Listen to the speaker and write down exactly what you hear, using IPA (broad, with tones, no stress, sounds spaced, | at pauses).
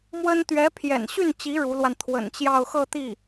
m w ə˥ n t̪ ɥ ɛ˧˥ pʰ j ɛ̰˨˩ n ɕ y˥˩ n t͡ɕ i˧˥ ɻ u˧˥ l w a˧ n t̪ʰ w ə̰˨˩ n t͡ɕ j ɑ˥˧ ʊ̯ x ɤ˥˧ t̪ i˥˩